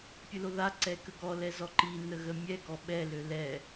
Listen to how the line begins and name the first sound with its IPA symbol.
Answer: pʲ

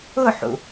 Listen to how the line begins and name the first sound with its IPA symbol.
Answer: ʊ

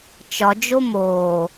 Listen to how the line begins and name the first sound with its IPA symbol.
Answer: t͡ʃ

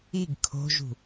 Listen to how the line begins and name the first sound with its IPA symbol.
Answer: i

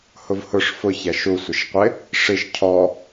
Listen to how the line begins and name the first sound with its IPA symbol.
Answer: h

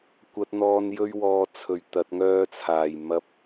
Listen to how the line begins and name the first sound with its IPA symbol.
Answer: kʷ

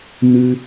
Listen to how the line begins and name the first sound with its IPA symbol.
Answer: n̪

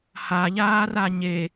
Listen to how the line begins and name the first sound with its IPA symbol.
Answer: h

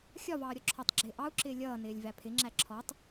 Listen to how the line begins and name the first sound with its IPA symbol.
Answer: xʲ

